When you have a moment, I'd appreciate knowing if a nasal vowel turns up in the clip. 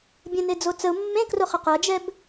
yes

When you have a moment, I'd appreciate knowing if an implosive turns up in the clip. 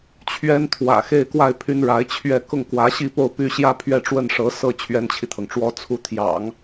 no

